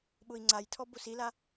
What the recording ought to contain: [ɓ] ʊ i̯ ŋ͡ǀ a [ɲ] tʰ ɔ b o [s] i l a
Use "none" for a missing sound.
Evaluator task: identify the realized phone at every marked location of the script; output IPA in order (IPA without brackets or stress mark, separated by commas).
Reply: ɓ, j, s